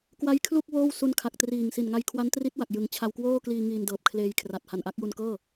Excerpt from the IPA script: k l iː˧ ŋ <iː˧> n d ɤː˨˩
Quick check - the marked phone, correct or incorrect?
correct